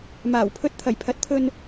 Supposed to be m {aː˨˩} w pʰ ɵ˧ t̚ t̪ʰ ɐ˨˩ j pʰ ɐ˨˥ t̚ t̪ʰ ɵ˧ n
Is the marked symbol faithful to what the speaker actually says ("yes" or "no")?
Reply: yes